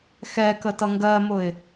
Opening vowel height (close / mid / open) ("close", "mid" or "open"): mid